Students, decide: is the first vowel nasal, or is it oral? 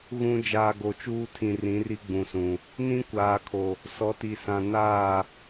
nasal